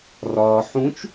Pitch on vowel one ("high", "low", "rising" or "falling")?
low